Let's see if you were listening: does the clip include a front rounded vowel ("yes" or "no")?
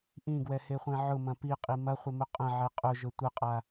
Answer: no